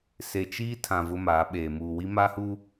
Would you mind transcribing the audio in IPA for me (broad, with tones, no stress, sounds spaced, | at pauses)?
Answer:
s e˨ t͡ʃ iː˦ tʰ ã˨ v ʊ˦ m aː˨˦ ɓ eː˨ m uː˨ w i˦ m a˦ h uː˦